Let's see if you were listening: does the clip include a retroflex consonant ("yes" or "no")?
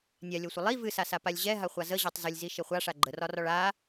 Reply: yes